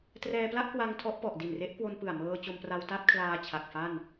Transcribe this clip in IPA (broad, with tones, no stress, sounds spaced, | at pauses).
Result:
t r ɛː˧ p l a˥˩ ʔ k w a˧ ŋ tʰ ɔ˦˥ ʔ p ɔ˨˩ ʔ d i˨˩ n r e˦˥ ʔ k w o˧ n p ɯ˨˩ a̯ m ɤː˧ t͡ɕ o˧ m p r a˧ w t a˥˩ t̚ kʰ l aː˧ t͡ɕʰ a˨˩ k̚ f a˥˩ n